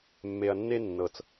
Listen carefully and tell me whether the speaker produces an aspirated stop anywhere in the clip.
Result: no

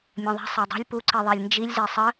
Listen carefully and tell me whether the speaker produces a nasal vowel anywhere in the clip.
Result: yes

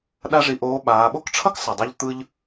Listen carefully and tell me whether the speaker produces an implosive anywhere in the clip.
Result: yes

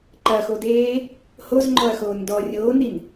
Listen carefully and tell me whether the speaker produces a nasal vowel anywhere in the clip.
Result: no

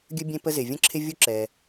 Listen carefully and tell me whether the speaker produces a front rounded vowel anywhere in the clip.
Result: no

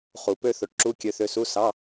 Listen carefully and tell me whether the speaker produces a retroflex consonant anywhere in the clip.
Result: yes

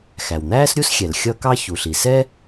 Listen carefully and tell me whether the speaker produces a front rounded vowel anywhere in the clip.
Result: no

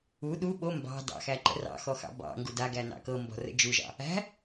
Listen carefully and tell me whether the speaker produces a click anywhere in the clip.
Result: yes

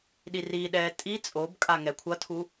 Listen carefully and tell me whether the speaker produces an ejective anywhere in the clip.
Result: yes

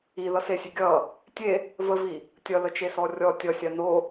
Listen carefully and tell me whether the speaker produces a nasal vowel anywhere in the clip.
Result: no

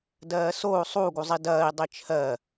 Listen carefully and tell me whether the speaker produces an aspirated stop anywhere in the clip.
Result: yes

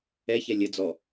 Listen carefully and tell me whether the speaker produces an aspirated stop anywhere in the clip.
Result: no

